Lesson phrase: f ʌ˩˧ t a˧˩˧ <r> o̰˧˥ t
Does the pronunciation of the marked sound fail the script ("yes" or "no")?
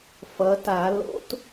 yes